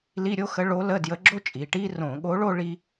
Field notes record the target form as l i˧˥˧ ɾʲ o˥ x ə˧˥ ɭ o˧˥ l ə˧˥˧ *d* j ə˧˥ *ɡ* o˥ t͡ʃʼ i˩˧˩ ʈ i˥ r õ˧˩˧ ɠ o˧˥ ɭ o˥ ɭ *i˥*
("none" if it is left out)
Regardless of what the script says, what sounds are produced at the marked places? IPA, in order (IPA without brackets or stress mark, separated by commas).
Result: d, ɡ͡ǁ, i˥